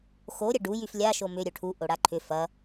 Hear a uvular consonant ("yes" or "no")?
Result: no